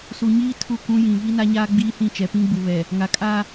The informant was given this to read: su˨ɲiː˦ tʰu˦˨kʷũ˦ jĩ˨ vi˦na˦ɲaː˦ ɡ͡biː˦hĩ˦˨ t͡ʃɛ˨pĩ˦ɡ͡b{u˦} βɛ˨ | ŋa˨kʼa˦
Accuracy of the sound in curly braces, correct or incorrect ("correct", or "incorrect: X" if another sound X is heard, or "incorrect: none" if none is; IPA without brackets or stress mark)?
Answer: incorrect: u˨